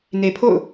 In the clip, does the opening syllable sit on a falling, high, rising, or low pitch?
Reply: low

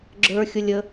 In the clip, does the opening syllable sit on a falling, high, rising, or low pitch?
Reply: high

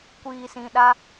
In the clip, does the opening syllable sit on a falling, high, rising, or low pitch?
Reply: low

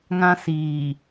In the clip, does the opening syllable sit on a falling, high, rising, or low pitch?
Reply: high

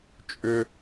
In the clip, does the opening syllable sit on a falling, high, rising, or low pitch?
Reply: high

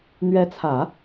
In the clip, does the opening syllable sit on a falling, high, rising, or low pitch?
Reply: rising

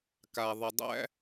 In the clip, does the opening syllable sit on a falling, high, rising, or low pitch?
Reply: low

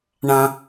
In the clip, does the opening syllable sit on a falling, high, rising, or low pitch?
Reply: low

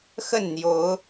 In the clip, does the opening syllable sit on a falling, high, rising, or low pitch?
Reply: falling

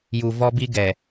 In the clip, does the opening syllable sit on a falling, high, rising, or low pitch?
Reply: low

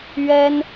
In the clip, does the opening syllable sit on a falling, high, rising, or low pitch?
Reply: high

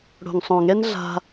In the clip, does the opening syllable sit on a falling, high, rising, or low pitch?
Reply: low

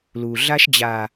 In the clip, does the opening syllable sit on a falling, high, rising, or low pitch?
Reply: low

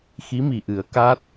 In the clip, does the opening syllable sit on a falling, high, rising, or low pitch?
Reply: rising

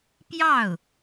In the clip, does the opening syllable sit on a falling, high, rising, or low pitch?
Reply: falling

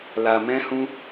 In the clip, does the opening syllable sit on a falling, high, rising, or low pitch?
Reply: low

